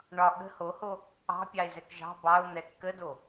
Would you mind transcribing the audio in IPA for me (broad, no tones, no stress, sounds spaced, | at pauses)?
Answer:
ɳ ɒ ɠ ə̤ h o h o | ɑ̤ pʲ ɑ ɪ̯ z ɛ k ʒ ɑ̤ b ɑ ʊ̯ n̪ ɛ kː ə d o